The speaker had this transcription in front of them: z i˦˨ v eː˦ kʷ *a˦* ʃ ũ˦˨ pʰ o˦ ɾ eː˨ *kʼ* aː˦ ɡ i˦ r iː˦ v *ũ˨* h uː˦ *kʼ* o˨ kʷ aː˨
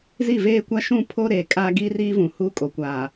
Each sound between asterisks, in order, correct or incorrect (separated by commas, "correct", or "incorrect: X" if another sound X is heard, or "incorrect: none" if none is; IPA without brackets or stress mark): correct, correct, correct, correct